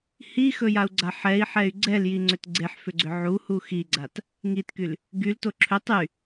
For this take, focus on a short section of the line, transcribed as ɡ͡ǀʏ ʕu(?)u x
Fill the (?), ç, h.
h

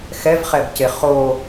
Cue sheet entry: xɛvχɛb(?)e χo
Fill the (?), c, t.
c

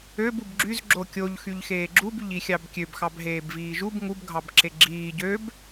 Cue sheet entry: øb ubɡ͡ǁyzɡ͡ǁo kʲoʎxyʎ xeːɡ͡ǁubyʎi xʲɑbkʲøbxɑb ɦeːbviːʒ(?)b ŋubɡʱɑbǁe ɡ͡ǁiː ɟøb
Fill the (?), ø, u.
u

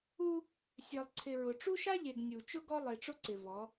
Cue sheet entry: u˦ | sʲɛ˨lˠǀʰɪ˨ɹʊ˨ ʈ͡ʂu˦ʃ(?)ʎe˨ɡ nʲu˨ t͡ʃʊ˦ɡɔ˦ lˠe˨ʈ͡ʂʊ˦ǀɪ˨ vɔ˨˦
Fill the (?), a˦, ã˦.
a˦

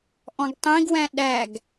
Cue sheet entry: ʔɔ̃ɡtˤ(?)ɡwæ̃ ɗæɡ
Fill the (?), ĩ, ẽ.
ĩ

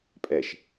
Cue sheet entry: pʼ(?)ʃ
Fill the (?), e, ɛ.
ɛ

